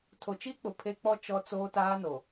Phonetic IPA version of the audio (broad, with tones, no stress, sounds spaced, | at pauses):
tʰ o˨ t͡ʃ iː˦ k͡p ʊ˨ pʰ e˦ k͡p ɔ˦ t͡ʃ ɔ˦ t͡s oː˦ t aː˦ n o˨